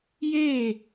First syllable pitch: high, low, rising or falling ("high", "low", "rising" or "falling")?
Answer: falling